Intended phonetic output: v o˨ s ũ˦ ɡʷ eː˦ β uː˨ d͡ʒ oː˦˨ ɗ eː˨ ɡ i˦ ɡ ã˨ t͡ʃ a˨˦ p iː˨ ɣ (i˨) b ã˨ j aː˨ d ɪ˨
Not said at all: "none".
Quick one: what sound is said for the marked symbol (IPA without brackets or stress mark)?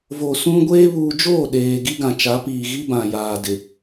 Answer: i˦